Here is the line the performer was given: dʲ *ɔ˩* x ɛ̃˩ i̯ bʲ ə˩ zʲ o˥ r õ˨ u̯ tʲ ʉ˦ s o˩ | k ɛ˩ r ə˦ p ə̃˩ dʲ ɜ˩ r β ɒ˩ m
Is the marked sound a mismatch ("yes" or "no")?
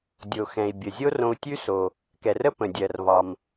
yes